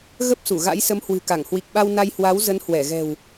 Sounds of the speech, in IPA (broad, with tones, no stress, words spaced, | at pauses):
ɣə˦˥p̚su˧˩ ɣa̰˧˥jsə˨˦mhwɨ̤˨˩ka˧˩ŋ hwi˨˩k̚ɓa˧w na˧jhwa˨˦w zə˨˦nhwɛ˧˩ɣɛ̤˨˩w